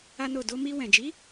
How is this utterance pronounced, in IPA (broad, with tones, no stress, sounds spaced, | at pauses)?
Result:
a˦ n o˦˨ d o˧ m i˧ w ɛ̃˨ d͡ʒ i˨˦